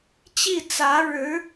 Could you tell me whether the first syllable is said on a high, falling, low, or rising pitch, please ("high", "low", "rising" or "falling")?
falling